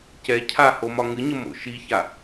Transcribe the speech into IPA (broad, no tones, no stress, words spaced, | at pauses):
cɛ cʰaho mɒŋɨɲə mo̰ʃiça